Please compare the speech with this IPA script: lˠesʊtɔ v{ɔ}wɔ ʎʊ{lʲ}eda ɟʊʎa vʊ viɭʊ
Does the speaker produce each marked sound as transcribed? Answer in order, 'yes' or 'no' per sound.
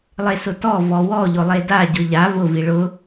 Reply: yes, no

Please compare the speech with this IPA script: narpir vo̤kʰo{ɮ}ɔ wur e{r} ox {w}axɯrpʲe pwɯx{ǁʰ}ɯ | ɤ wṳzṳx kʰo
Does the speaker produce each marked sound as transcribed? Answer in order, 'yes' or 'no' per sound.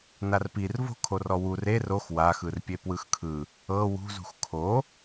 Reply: no, yes, yes, no

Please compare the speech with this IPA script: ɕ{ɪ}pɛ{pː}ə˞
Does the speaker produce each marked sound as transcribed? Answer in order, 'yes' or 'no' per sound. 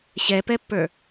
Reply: no, yes

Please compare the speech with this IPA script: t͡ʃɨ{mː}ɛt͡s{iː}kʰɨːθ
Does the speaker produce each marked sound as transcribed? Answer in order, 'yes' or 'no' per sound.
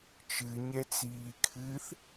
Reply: no, yes

